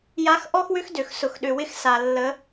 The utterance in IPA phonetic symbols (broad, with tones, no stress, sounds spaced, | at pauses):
j a˧˥ x ʔ ɔ˥ x w ʏ˥ x d ø˩ x s ʊ˩ x ɗ ʏ˩ w ɪ˧ x s a˩ lː ə˩˧